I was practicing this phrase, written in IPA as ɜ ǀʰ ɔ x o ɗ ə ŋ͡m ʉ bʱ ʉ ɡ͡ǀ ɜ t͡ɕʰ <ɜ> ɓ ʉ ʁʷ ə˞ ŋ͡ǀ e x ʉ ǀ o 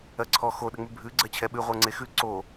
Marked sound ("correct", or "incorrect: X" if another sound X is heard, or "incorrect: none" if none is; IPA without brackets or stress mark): incorrect: ɛ